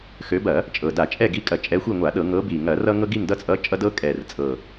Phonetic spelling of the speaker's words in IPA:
x ø˨˦ b ɐ˧˩˧ | t͡ʃʼ ɤ˨˩ d a˧˩˧ t͡ʃʼ ɛ˦˨ ɡ i˨˦ kʼ ɐ˨˩ t͡ʃʼ ɛ˨˦ xʷ i˦˨ ŋʷ a˧˩˧ ɗ ɤ˧˩˧ ŋ ɤ˨˦ b i˨˩ ŋ ɐ˧˩˧ r ʌ˦ ŋ ɤ˦ ɡ i˦˨ ŋ d ʌ˦˨ t͡sʼ ʌ˨˦ t͡ʃʼ ʌ˦ d ɤ˦ kʼ ɛ˨˩ r t͡sʼ ɤ˨˩

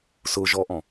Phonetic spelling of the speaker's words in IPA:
s ʊ ʒ ɔ ʔ ɔ̃

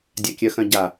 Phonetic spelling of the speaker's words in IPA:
dʲ a kʲ œ x œ̃ ɟ a

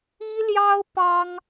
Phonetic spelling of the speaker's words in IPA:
i˥ l j ɑ˥ ʊ̯ p ɑ˥ ŋ

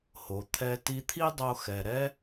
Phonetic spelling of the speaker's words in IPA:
h o˩ t̪ʰ ɛ˧ t i˧ t̪ʰ i˥ dˤ o˧ x ɛ˩ ɾ ɛ˥

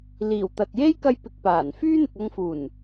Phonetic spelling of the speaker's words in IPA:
l iː˨˩ w t̪ ɐ˨ t̚ j e˥ j k ɐ˥ j p ɪ˧ k̚ p aː˨˩ n f yː˥ n̪ ɪ˨ k̚ ɐ˧ ŋ f uː˨˩ n

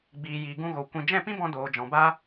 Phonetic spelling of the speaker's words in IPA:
ɡ͡b iː˨ j iː˨ ɡ ũ˧ ɣ o˨ kʷ ĩ˨ d͡ʒ ɛ̃˦˨ p ĩ˦ b ɔ̃˧ d oː˨ d͡ʒ ɔ̃˨ b a˦

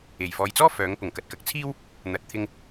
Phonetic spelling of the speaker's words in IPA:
e˨˩ j f ɔː˨ j t͡s ɔː˥ f œː˨˥ ŋ p ʊ˨˩ ŋ k ɐ˨ t̚ k ɐ˨ k̚ t͡sʰ iː˥ w | n̪ ɐ˨˥ t̚ t̪ʰ ɪ˧ ŋ

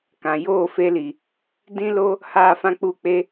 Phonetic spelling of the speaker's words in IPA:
k ã˨ j oː˦˨ f e˧ l i˨ | d ĩ˦ l o˦ | h aː˦˨ f ã˦ k͡p u˦˨ k͡p e˧

